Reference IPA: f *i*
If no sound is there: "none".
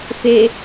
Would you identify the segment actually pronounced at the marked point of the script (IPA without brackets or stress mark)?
e